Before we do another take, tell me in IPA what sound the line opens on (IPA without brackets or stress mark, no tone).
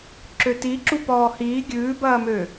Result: ǁ